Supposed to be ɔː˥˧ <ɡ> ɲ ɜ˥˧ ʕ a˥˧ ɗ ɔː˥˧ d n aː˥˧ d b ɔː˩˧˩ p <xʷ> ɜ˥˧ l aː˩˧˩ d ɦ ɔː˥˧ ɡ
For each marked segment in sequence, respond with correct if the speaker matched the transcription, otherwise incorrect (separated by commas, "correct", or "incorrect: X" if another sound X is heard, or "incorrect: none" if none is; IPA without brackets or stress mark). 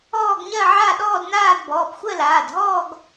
correct, correct